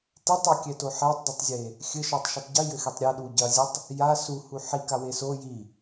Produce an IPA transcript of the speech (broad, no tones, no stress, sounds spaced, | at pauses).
t e tˤ o kʲ ɛ t o ħ ɛ tˤ dˤ i tˤ zʲ e | xʲ ɘ ʃ ɔ tˤ ʃ ɘ tˤ ɟ i j ɘ x e tˤ ɾʲ ɐ ɗ u ɟ ɐ zʲ ɘ tˤ | j a s u h u ħ i k a w e s o j i